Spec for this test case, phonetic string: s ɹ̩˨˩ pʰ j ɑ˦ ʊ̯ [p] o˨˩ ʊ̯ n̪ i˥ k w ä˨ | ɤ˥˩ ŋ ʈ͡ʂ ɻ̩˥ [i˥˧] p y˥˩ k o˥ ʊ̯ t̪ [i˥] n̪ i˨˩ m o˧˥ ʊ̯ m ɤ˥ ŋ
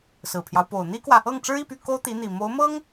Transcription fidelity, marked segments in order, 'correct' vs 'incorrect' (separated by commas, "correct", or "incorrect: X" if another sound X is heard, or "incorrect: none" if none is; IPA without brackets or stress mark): correct, correct, incorrect: i˧˥